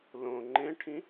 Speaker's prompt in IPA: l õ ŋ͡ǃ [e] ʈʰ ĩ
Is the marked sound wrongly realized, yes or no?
yes